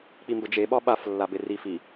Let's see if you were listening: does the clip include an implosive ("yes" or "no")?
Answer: yes